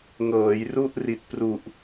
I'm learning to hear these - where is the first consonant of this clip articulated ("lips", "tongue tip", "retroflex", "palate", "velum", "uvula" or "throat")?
velum